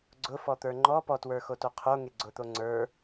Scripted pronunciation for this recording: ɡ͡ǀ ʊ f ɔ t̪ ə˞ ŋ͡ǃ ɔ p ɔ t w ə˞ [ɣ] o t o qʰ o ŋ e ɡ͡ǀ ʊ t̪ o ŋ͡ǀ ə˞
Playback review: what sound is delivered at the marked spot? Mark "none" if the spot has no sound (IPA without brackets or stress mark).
x